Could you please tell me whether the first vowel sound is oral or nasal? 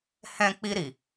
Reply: nasal